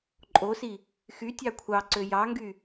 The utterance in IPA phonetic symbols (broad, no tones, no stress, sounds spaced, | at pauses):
ǃʼ o s i | x y tʲ ɑ kʷʰ ɑ ǀ ø j ɑ ŋ ɡ y